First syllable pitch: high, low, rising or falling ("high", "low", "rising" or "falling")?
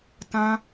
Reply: high